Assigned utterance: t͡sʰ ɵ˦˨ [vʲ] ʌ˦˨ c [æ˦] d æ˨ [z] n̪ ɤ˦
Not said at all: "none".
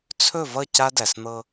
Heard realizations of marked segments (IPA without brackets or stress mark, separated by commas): v, a˦, s